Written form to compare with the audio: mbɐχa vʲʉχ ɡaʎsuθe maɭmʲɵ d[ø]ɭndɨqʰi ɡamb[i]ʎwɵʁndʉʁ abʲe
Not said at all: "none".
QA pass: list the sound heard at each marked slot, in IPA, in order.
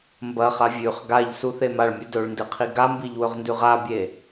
ɵ, i

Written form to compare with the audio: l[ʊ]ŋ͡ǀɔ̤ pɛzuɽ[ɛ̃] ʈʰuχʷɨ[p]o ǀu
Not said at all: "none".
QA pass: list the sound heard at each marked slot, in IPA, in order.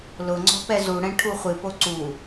ʊ, ɛ̃, p

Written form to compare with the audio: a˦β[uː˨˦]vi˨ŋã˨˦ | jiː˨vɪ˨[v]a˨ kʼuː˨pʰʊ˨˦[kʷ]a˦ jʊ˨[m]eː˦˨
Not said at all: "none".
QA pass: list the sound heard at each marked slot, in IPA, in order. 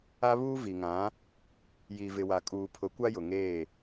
uː˦, w, kʷ, ŋ

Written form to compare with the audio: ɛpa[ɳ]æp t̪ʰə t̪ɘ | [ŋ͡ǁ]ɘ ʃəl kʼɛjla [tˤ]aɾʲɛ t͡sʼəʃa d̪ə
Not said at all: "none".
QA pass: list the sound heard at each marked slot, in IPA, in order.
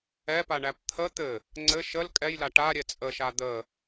ɳ, ŋ͡ǀ, ʈ

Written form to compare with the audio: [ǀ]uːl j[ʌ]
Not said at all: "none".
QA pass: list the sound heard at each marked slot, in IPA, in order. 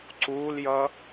ǀ, ʌ

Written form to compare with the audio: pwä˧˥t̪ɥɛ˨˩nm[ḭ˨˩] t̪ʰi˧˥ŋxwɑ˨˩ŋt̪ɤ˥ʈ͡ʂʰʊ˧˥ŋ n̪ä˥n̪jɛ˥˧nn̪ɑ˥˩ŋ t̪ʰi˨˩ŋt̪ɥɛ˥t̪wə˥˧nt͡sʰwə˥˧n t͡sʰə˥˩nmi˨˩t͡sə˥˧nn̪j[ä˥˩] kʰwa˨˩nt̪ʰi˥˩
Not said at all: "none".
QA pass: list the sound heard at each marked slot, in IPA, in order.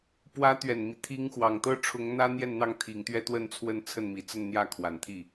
i˦, ä˥˩

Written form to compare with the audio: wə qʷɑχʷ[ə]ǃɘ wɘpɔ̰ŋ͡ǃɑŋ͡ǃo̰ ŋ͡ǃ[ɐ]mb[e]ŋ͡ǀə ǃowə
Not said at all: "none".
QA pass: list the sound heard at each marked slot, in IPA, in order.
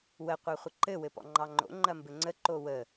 ə, ɐ, ɘ

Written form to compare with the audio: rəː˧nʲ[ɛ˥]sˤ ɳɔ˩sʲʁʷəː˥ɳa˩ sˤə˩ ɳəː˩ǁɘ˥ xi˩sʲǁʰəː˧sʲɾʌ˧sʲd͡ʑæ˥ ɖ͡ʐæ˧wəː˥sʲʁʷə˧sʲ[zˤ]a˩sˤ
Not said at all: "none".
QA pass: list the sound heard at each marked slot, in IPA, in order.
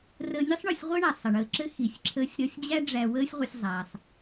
ə˥, zˤ

